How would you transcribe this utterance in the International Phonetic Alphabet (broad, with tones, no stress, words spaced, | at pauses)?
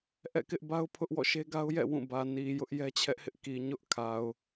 ʔɛ̰˦˨kɪ˦ʔba˦ʊ̯pʰʊ˦ʔ wɔ̰˦˨ʃe˦ɡa˦ʊ̯jɛ̰˦˨ wũ˦˨bä˨ ni˨ jʊ˦ʔjɛ˦t͡ɕʰɛ˦ʔhɪ˦ʔ ki˨ɲʊ˦ʔkʰa˨ʊ̯